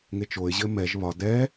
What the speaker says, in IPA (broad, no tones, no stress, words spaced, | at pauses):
ŋet͡ʃoɪ̯ʑɘ mɛʒ βɒ dɛ